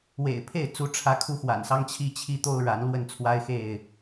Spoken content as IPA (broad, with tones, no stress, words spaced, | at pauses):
wḛ˨˩ɪ̯pʰe˥˨ɪ̯ t͡su˨˦ʈ͡ʂʰä˨˦ kʰu˦xwa̰˨˩nsɑ˦ŋ t͡ɕʰi˦t͡ɕʰi˦t̪o˦ʊ̯ɻa˨˦n lwə˥˨nt͡sʰwa˦ɪ̯xe˥˨ɪ̯